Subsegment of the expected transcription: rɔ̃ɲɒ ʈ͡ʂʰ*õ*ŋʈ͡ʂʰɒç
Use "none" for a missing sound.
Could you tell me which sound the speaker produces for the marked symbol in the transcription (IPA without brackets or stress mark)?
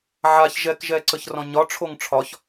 o